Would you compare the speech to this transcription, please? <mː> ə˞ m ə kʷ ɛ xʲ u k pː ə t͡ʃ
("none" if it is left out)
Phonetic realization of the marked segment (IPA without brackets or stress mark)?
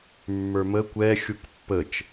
mː